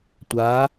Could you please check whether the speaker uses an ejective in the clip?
no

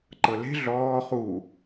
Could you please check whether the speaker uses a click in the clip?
yes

